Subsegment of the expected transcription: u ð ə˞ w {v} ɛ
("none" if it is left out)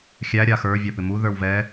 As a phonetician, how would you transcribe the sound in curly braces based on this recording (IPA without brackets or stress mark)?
v